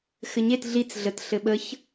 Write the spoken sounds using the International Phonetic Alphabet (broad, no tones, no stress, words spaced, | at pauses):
xɘɲet ɮit͡s ɮət ɬɘɓəç